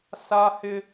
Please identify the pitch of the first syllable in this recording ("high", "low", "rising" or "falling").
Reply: high